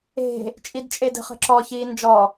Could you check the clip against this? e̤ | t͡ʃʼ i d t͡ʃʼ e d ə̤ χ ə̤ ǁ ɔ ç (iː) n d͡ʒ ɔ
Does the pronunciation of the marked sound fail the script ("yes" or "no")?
no